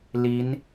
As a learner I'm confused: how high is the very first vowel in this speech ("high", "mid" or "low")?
high